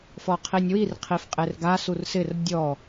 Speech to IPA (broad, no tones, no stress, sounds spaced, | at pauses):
f ɔ qʰ i nʲ w i r qʰ i f qʼ e r ɡ a s u r s ɪ r dʲ ɔ